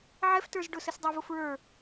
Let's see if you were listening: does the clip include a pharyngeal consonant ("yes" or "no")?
yes